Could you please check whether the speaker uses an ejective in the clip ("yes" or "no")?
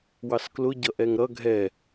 no